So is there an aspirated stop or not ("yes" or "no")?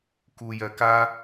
no